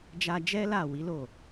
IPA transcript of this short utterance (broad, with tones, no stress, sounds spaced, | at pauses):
d͡ʒ a˧ d͡ʒ ɛ˦ l a˦˨ w i˨˦ l o˦˨